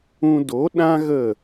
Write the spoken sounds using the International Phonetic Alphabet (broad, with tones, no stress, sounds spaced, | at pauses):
ũ˧ d o˨˦ ɗ ã˦ ɣ ə˦˨